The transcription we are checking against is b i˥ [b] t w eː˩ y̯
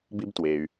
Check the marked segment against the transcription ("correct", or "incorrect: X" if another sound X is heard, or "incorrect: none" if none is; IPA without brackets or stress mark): correct